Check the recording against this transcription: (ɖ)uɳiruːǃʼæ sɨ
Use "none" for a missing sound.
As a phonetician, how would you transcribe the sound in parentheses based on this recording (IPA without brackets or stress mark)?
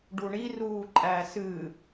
ɖ